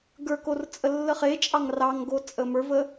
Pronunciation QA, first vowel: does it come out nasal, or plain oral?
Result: oral